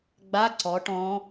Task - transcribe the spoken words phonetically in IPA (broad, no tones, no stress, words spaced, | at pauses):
ɡ͡ba ǀɔ ʈɔ̃